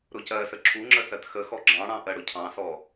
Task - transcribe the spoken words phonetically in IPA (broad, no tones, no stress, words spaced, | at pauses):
ɾʊcɜsə ǁʰuŋ͡ǁə sɜtxəxɔ ɡ͡ǁɑ̃ɽɑ̃ ʔɜɽʊcʰɑ̃sɔ